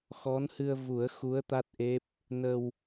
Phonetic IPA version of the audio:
x ɔ˧˥ n h ɨ˧ ə̯ v u˨˩˦ ə̯ x u˧˥ ə̯ t̪ a˦˥ t̚ ʔ e˦˥ p̚ | n ə˧ w

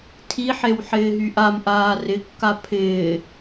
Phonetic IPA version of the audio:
tʰ i ħ e w ħ ɪː ɦ y ʔ a m ʔ aː r ɪ kː a pʰ ɪː

